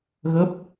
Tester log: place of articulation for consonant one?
velar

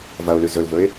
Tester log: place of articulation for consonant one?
labial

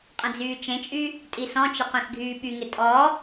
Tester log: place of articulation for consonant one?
uvular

